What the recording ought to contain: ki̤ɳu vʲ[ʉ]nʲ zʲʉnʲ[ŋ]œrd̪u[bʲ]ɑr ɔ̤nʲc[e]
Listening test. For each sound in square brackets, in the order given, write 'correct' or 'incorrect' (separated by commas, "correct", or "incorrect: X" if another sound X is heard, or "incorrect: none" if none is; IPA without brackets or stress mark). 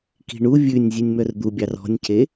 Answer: correct, incorrect: m, correct, correct